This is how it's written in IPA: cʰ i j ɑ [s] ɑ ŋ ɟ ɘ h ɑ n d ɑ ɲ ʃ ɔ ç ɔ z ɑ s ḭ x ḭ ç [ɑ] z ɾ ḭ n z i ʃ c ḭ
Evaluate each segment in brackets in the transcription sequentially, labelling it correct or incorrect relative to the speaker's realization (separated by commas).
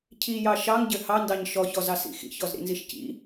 incorrect, incorrect